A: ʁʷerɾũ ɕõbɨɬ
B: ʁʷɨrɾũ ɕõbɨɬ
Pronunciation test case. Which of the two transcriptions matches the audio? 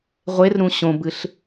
A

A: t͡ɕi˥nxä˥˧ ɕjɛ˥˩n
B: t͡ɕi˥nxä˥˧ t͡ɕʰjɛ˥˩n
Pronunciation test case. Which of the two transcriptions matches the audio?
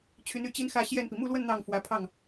A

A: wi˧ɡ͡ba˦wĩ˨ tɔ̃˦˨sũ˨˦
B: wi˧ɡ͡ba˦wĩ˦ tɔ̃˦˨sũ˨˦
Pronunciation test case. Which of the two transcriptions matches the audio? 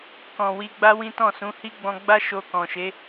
B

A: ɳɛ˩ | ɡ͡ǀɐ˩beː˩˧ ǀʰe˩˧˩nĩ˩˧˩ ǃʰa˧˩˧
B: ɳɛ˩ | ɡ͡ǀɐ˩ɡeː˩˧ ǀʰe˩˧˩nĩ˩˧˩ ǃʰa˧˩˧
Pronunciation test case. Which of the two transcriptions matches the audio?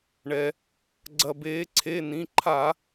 A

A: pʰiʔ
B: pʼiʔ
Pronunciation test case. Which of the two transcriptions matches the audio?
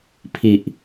A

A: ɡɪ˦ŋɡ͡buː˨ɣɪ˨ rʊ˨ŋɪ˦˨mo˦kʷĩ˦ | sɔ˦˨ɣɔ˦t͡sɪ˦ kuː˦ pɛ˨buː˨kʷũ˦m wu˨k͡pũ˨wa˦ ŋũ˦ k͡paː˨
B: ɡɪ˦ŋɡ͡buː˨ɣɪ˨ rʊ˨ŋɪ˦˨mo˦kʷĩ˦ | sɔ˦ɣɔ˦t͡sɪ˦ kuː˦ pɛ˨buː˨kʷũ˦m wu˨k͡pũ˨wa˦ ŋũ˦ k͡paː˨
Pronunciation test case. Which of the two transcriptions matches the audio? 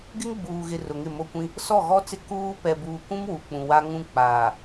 A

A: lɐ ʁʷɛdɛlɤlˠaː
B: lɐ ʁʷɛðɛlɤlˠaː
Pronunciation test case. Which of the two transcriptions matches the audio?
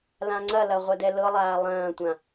A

